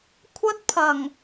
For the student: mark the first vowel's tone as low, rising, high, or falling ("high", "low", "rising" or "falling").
high